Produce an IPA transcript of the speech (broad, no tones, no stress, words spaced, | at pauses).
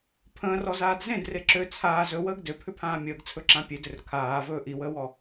pʰə̃ːrɔzaːd zẽdre ǁø t͡sʰaːz ɵwəːɡ døpʰʏpʰãː mʲəːɡt͡sʰɵǁã pʲedʏr kʰaːvɵː ʔiwəːwɔ